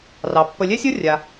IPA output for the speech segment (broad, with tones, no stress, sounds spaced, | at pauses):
r ɑ˩ pː ə˨ lʲ ɛ˥ sʲ ʌ˥ rʲ a˩